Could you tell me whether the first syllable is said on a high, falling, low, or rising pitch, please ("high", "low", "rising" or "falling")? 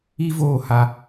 high